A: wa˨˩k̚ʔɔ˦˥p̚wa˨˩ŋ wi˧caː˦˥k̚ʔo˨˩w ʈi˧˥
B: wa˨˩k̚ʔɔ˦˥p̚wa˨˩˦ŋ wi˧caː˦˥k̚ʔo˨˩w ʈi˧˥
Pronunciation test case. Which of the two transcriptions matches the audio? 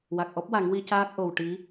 B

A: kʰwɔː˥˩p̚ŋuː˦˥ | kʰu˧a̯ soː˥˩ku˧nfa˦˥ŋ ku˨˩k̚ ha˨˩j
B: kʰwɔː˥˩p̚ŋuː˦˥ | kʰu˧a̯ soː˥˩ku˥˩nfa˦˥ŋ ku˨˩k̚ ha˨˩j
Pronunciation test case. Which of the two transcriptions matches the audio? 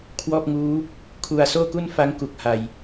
B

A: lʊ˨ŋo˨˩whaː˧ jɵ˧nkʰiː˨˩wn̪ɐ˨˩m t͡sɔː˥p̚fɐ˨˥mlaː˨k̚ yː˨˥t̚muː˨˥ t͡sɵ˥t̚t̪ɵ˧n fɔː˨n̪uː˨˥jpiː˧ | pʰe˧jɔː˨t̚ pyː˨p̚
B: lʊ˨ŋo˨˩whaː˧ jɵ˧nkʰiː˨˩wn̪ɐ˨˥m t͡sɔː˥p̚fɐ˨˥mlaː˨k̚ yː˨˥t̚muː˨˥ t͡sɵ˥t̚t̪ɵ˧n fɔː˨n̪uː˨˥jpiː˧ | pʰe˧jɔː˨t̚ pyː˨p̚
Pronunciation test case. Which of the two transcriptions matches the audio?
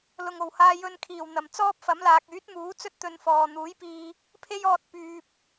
A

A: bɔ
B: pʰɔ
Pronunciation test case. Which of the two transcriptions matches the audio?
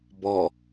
A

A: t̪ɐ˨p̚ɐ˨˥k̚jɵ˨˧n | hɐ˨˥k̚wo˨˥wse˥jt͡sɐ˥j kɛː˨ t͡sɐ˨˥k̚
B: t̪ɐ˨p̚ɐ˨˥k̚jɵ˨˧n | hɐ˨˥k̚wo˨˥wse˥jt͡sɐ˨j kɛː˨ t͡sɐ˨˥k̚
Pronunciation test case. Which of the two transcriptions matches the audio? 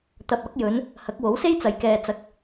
B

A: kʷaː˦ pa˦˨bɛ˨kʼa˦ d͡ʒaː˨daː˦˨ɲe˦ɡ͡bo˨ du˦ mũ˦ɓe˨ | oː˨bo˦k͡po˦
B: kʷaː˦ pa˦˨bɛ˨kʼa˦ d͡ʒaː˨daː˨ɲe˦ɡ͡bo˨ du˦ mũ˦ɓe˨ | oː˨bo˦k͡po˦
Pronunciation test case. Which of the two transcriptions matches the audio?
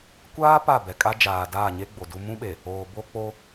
A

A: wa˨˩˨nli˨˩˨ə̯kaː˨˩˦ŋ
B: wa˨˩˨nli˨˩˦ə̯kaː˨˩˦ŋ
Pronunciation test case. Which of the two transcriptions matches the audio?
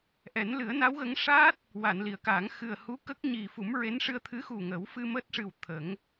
A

